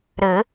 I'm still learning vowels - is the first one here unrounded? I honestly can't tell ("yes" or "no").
yes